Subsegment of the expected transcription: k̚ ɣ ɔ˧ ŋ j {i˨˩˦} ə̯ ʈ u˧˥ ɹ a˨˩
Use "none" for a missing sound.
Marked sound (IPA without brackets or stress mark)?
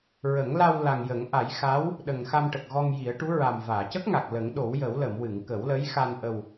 i˨˩˦